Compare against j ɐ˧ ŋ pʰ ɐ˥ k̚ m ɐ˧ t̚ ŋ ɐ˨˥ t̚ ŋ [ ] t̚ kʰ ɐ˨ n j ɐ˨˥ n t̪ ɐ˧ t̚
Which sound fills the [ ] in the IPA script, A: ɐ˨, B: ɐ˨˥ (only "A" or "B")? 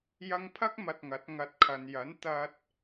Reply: B